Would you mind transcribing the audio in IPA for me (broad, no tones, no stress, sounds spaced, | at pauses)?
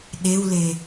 ɗ e w l e